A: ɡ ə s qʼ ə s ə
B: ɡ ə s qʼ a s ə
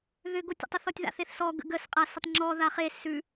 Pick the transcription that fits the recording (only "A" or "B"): B